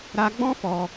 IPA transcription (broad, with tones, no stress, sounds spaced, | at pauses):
ɾ a˧ ɡ͡b ɔ̃˦ f ɔ˧